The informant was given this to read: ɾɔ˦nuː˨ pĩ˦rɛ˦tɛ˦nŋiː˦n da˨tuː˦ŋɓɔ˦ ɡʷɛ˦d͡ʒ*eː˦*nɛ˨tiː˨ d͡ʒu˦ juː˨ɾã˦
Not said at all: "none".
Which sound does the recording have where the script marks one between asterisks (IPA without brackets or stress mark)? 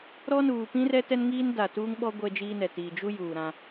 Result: iː˦